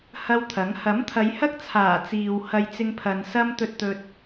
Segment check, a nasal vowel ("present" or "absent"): absent